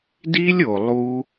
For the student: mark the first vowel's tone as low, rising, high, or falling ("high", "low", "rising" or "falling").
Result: high